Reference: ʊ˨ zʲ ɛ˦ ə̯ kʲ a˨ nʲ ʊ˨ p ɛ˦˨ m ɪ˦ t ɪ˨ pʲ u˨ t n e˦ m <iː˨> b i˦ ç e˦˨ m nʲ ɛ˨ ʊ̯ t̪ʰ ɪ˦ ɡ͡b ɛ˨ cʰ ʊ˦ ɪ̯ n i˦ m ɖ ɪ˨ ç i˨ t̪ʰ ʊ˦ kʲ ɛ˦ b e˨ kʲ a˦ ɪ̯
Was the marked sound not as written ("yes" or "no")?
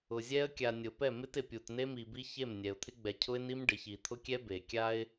yes